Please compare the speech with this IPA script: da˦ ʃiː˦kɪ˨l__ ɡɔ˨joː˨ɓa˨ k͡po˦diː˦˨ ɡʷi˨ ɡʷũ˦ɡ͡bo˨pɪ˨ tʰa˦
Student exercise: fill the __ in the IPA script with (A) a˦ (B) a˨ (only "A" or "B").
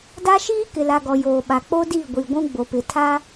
B